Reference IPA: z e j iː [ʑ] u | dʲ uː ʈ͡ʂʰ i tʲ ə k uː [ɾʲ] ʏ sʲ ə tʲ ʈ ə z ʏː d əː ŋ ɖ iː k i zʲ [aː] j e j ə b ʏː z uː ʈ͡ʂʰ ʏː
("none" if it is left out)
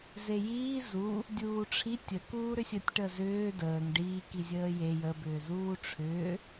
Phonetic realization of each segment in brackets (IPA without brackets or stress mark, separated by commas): z, ɾ, əː